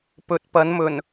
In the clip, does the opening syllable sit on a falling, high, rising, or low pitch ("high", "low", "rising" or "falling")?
rising